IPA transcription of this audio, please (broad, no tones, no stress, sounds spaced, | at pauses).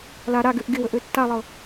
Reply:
l a ɾ a ɡ ø ʔ ɡ ɪ w ə ʔ ø tː a lˠ ɤ